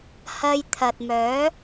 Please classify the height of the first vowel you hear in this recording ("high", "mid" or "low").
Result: low